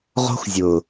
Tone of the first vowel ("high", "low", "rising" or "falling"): high